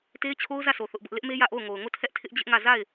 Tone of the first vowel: high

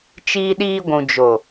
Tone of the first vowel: high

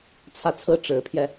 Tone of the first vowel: falling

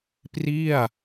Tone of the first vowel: falling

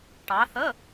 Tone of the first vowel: rising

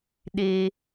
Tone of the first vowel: high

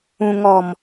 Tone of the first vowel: low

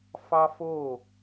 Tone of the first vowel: high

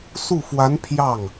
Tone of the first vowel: falling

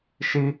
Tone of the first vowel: high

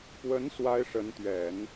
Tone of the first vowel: rising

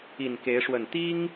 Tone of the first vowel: low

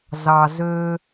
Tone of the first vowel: low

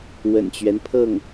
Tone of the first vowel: low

